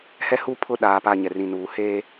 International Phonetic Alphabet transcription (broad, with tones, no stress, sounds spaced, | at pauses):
h ɛ˦ h u˦ pʰ ʊ˦˨ ɗ aː˨ p a˦˨ ɲ ɛ˨ r ĩ˨ n uː˨ h eː˦